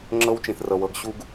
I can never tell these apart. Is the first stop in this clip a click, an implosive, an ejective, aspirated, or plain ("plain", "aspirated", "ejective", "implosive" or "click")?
click